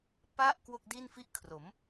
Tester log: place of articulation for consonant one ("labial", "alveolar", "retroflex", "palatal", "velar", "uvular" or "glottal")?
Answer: labial